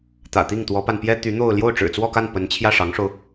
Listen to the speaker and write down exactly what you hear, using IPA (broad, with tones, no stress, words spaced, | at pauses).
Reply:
t̪ä̰˨˩t̪i˥˩ŋt̪wɔ˧˥pa˧n pjɛ˥t̪y˧˥n̪o˥˧ʊ̯ ljo˥˩ʊ̯ʈ͡ʂɻ̩˨˩t͡swɔ˥˧ka˥˩n pə˧˥nt͡ɕʰjä˥˩ ʂɑ˧˥ŋʂo˧ʊ̯